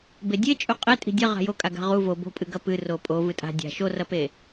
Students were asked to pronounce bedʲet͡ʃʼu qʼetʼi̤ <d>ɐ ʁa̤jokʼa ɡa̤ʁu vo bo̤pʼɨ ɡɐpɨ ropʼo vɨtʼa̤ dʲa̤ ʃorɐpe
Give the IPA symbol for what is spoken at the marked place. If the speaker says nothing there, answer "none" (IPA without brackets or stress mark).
dʲ